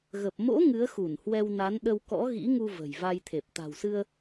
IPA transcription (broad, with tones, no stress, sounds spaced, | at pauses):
ɣ ə˨˩ p̚ m o̰˧˥ ŋ ɨ˨˦ ə̯ x u˧˩ n h w ɛ˧ w n a˨˦ n ɗ ə˧ w k ɔ̰˧˥ ɣ ḭ˧˥ ŋ u˧ v ə̤˨˩ j v a˧ j t̪ʰ e˨˩ p̚ t̪ a̤˨˩ w s ɨ˧ ə̯